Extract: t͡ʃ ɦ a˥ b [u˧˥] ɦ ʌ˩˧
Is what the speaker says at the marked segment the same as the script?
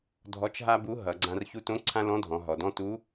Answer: yes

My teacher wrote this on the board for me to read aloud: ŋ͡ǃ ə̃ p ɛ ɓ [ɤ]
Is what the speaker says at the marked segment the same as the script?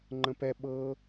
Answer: yes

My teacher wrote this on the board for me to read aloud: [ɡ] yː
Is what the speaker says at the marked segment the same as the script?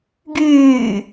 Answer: yes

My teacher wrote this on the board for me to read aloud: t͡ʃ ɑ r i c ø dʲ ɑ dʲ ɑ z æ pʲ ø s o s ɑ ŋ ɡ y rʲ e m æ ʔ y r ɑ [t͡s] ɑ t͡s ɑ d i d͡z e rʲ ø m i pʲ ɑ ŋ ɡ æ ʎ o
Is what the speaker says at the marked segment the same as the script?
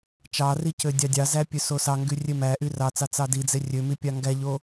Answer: yes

